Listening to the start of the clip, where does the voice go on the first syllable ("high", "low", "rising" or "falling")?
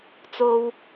high